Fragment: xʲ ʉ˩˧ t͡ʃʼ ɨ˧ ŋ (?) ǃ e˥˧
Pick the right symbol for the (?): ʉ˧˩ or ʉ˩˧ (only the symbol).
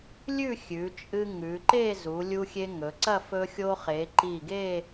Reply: ʉ˩˧